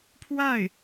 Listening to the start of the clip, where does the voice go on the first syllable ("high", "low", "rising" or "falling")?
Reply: falling